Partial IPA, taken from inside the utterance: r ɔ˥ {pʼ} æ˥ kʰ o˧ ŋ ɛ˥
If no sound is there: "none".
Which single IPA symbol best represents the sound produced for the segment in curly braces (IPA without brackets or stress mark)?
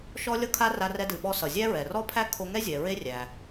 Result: pʰ